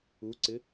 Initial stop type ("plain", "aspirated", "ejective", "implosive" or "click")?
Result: click